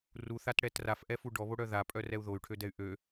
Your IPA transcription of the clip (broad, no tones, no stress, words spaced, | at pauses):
ruθatɽɛt rafʔɛfu ɖɔβoɽœ ðapʼœrɛu̯ ðoy̯ʈʰødɛy̯ ʔø